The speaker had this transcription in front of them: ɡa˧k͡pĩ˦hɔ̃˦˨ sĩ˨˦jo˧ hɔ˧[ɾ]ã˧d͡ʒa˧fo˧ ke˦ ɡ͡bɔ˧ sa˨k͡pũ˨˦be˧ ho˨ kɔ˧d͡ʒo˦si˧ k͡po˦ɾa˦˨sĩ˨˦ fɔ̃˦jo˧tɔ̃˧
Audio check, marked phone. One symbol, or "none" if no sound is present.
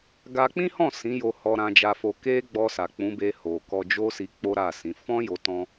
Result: ɾ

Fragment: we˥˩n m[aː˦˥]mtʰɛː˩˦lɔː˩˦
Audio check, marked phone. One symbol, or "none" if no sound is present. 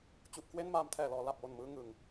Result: aː˦˥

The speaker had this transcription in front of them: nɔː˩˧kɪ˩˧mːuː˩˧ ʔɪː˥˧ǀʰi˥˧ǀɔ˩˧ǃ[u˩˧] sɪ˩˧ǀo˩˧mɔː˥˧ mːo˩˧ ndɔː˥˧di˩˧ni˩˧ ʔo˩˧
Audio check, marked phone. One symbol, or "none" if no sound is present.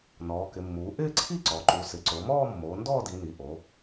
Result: u˩˧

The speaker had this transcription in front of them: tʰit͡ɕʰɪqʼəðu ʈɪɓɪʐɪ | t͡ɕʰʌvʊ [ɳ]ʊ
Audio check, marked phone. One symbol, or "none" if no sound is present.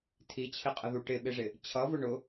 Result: ɳ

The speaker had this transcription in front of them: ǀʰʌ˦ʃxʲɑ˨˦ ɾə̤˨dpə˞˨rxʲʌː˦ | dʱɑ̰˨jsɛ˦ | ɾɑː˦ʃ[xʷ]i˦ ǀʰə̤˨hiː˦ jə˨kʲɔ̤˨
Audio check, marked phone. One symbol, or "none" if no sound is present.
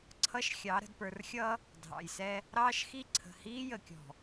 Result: x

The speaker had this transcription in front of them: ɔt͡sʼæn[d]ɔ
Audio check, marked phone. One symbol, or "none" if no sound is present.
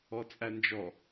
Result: d͡ʒ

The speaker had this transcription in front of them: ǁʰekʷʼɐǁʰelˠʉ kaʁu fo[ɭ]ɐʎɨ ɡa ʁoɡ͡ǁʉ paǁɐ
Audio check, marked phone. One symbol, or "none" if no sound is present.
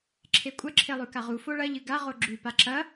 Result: ɭ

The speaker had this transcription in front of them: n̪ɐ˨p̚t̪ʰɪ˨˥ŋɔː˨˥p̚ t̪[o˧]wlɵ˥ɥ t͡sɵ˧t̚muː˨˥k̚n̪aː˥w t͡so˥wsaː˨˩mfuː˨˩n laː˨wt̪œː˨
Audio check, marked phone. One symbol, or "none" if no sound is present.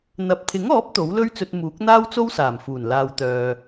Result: o˨˥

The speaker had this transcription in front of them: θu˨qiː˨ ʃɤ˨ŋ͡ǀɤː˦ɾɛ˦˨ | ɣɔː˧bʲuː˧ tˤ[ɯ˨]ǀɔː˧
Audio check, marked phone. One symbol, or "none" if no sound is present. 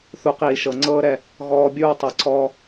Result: ɯ˨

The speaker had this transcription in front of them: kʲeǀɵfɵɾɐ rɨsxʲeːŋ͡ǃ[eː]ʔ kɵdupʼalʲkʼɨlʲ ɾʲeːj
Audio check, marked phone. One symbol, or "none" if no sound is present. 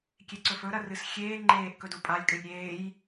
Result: eː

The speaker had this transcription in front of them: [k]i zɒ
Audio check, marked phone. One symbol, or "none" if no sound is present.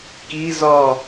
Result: k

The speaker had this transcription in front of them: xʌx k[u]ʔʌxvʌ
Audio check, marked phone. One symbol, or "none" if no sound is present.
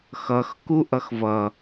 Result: u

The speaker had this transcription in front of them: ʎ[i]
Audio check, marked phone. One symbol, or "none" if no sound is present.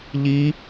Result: i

